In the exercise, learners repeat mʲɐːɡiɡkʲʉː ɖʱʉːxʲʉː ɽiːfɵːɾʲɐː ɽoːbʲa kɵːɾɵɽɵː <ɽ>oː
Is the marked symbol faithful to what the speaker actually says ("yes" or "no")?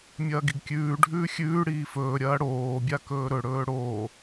yes